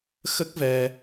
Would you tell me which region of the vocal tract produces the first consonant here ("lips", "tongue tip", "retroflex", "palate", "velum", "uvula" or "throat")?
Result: velum